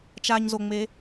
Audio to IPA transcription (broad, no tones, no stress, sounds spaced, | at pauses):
t͡ʃ a ɲ z o ŋ͡m e